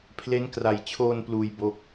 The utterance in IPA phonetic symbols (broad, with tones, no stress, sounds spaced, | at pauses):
pʰ l e˦˥ n k r a˨˩ j t͡ɕʰ oː˧ n p l uː˧ j b o˦˥ k̚